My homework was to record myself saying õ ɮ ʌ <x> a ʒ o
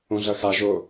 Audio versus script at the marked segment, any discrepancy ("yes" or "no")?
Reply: no